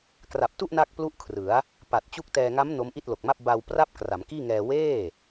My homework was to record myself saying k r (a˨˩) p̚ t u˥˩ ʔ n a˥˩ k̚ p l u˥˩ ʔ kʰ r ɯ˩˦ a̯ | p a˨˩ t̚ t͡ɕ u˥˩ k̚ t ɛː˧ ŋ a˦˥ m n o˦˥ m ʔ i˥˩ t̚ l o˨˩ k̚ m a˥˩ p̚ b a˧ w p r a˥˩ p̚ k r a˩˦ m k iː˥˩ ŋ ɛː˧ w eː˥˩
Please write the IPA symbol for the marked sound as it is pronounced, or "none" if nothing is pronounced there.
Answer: a˨˩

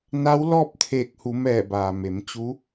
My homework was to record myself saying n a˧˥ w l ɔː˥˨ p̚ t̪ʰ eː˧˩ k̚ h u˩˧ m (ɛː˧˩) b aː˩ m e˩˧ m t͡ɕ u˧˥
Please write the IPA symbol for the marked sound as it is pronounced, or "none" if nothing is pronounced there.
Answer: ɛː˧˩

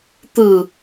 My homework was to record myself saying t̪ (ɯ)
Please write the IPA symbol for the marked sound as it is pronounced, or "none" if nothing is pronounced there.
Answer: ɯ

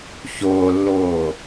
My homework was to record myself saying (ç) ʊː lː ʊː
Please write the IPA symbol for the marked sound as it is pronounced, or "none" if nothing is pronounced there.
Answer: ç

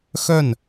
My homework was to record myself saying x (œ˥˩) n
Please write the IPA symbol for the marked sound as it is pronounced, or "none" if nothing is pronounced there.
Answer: œ˥˩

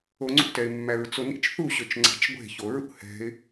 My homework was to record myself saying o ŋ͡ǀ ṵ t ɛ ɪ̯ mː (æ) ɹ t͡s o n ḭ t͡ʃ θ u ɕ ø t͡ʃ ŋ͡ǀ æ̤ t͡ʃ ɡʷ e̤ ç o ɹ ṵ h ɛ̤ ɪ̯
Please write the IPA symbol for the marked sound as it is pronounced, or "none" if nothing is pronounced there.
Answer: æ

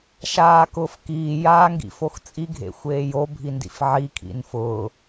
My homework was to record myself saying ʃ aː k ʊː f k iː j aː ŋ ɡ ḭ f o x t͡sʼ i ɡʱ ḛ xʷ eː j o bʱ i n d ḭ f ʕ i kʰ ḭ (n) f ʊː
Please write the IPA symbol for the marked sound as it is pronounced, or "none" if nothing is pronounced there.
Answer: n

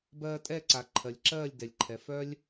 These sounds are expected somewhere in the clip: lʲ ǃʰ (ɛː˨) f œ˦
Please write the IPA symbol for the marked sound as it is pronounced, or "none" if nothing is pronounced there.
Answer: ɛ˨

